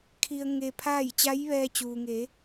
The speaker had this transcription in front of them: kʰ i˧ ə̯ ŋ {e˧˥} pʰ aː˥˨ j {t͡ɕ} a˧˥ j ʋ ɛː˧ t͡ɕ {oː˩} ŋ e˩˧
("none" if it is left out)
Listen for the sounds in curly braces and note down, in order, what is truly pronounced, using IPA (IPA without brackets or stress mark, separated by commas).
e˧, t͡ɕ, uː˩